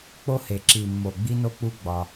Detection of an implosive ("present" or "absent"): absent